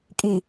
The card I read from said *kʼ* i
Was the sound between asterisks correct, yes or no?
yes